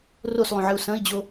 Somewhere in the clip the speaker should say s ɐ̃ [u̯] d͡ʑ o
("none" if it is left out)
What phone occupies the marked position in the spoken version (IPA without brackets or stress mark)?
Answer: i̯